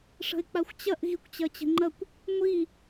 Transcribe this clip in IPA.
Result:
ʂ ə̤ ɪ̯ k͡p a xʷ t͡ɕ ɐ ʔ ɣ i kʷ t͡ɕ ɐ t͡ɕ ə̤ ŋ͡ǃ ɐ kʷ | ŋʷ i

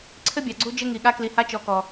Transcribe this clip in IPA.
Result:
ǀʰ ɘ˦ bʲ ɑ˨ ɡ͡ǀ u˦ d͡ʒ ɘ˦ ŋ i˨ ɠ a˦ k l i˨ h a˦ t͡ʃ ɔ˨ k ɔ˨

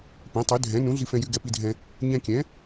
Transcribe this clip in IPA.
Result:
p ɛ̃˩˥ tˤ y˩˥ dʱ ɛ̃˩˥ n ũ˩˥ ɮ i˧ f ɛ̃˧ j y˧ ɡ ɛ˧ p i˧ dʱ ɛ̃˧ | ɲ ɛ̃˧ kʲ ɛ̃˩˥

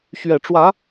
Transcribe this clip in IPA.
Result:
ɕ ɥ ɛ˨˩ ʈ͡ʂ w ä˨˦

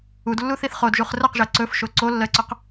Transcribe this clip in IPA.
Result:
u d lː u θ i θ χ o d ʒ u χ r ə q ʒ ɜ ǀ ɵ f ʃ o ǀ o lː ɜ ǀ ɵ q

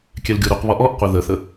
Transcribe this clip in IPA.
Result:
kʲ ɛ l ɡʲ o ɾ u q β ɔ ʔ ɔ ʔ qʷ i ð ə θ ə

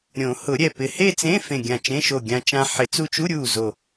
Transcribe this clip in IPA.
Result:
ɾʲ õ˨˩˦ h ʊ˨˩˦ ɾʲ ɛ˧˩ p ɪ˧˩ h e˥˧ t͡s ẽ˧˥˧ f ẽ˧˩ ɡʲ ã˧˩ t͡ʃ ẽ˧˥˧ ʃ o˧˩ ɡʲ ã˧ t͡ʃ ã˧ ħ ɪ˨˩˦ t͡s u˧ t͡ʃ u˧˥˧ ɾʲ u˧˩ z o˧˩

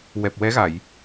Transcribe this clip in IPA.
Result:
w ɛ˨˩ p̚ w ɛ˧˥ ɣ a˨˩˨ j

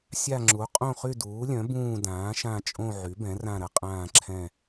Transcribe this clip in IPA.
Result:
sʲ a˦˨ ŋ͡ǁ u˩˥ qʼ õ˦˨ χ y˦˨ d uː˩˥ lʲ œ̃˩˥ b ũː˦˨ d ãː˩˥ ʃ ã˦˨ t͡ʃʼ õ˦˨ ʕ y˩˥ b ɛ̃˩˥ r ã˦˨ ɾ ə˩˥ qʼ ãː˦˨ ǁʰ ɛ̃˦˨

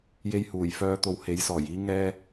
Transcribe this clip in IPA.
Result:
j e˧ j h uː˨˩ j f œː˧ t̪ o˨˧ w h e˨˥ j s ɔː˨˩ j iː˥ ŋ ɛː˥

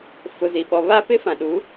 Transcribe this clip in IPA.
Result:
f ʊ˨ z i˨ ɓ ɔ˨ β aː˦ p ɪ˦ f ã˨ ɗ u˨˦

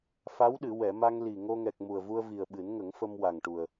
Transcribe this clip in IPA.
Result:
f a˧˥ w ɗ ɨ˨˩˨ w ɛ˨˩˨ m a˧ ŋ l i˨˩ ŋ o˧ ŋ ɛ˨˩ k̚ m u˨˩ ə̯ v u˧ ə̯ v i˨˩ ə̯ ɓ ɨ˨˩˦ n ŋ ə˨˩˦ ŋ f ə˧ m w a˨˩ ŋ ʈ u˨˩ ə̯

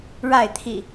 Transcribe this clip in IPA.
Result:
ɻ a˥˨ ɪ̯ t̪ʰ ḭ˨˩

